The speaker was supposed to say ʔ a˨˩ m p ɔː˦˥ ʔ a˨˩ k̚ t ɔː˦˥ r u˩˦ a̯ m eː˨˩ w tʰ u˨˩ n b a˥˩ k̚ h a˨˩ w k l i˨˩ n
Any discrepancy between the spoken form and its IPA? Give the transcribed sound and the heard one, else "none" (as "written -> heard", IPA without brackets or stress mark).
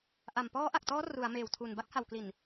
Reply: none